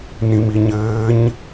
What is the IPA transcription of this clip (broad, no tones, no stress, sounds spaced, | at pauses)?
n ĩ m i ɲ ɘː ɲ